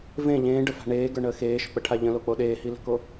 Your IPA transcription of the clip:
v ẽ ʎ ẽː ɖ ə f a̤ ɳ eː ɡ ə˞ ɳ əː x eː ʃ ʊ k͡p ə ʈʰ a ʎ ə̃ l o k͡p o ɗ eː h i l ə̤ k o

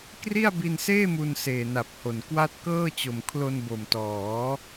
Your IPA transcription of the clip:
k r i˥˩ a̯ b i˧ n s eː˥˩ m u˧ n s eː˨˩ n a˨˩ p̚ h o˨˩ n k w a˦˥ t̚ k ɤː˥˩ t͡ɕ o˨˩ m kʰ l o˧ n b o˨˩ m t ɔː˩˦

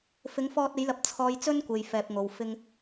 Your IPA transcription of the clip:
f ɪ˨˧ ŋ f ɔː˧ t̚ e˨˧ j l ɐ˨˥ p̚ t͡sʰ ɔː˨ j t͡s ɵ˧ n kʷ e˨ j f ɛː˨ p̚ ŋ o˨ w f ɪ˧ ŋ

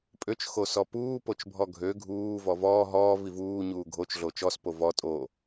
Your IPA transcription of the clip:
pʼ ø t͡ʃ x o s ɔ p uː p o t͡ʃ bʱ ɔ ɡʱ ø ɡʱ uː v ɔ v ɔː ɦ ɔː v i v uː ɲ uː ɡʱ o t͡ʃ ɮ o t͡ʃ ɔ s p o v ɔ tʼ o

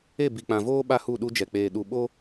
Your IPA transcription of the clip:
e˦˨ b i˨ k͡p ã˨ v oː˦ ɓ a˦ h u˦˨ ɗ u˦ d͡ʒ ɛ˨ k͡p eː˨ ɗ u˨ ɓ o˦

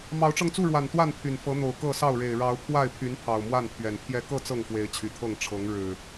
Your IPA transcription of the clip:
m ɑ˨˦ ʊ̯ ʈ͡ʂ ɤ˧ ŋ t͡s u˥˨ ɻ w a˨˩ n t̪ w a˥˨ n pʰ y˨˩ n f ɤ˨˦ n̪ o˨˩ ʊ̯ k ɤ˥˨ s ɑ˥˨ ʊ̯ ɻ e˨˩ ɪ̯ ɻ ɑ˨˦ ʊ̯ pʰ w a˥˨ ɪ̯ pʰ y˨˦ n pʰ ɑ˨˩ ʊ̯ m w a˥˨ n pʰ ɥ ɛ˨˩ n pʰ j ɛ˥˨ k ɤ˥˨ t͡s ɤ˥˨ ŋ f w e˨˦ ɪ̯ t͡ɕʰ y˨˩ t̪ʰ ɤ˥˨ ŋ ʈ͡ʂʰ ɤ˨˦ ŋ ɻ ɻ̩˨˩

